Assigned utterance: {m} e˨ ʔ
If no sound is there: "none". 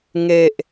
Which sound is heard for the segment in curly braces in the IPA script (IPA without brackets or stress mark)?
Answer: ŋ